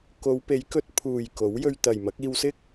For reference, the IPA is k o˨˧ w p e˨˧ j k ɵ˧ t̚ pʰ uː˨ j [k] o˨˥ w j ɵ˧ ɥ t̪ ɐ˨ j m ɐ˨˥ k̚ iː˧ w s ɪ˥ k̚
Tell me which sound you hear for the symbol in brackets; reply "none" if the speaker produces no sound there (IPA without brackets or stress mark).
k